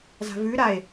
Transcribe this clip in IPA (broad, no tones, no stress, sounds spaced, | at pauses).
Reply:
z a̤ v ʉ ɾ a e̯